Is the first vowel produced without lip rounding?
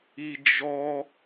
yes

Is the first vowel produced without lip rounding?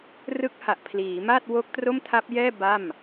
yes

